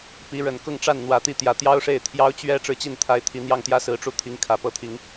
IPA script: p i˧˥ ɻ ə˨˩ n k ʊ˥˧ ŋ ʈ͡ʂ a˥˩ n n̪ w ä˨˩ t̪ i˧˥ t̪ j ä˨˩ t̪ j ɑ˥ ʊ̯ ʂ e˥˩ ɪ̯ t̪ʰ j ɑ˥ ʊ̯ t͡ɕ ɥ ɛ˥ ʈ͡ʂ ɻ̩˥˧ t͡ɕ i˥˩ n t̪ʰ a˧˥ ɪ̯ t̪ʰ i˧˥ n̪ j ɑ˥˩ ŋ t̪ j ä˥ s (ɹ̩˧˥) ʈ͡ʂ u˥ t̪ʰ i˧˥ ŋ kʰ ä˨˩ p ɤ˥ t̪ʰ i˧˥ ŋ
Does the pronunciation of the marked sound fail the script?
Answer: no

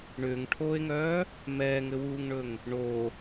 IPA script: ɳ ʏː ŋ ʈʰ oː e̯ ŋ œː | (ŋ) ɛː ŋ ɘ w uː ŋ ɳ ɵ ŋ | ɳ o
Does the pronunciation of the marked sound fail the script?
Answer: yes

